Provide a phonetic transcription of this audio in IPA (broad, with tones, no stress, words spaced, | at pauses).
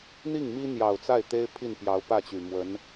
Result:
n̪i˥˩ŋmi˥ n̪jɑ˨˩ʊ̯t͡sa˥˩ɪ̯t̪e˥ɪ̯ pʰi˥˩npjɑ˧˥ʊ̯pä˥˩t͡ɕy˨˩ mwə˧˥n